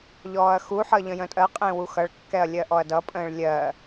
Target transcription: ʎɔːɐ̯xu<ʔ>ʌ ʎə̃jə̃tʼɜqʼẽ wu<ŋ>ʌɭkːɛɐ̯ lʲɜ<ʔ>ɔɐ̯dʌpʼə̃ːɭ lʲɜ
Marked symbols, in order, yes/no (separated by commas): no, no, yes